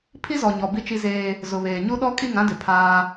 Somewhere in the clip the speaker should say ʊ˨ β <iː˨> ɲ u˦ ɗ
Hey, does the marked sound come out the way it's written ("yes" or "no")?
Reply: no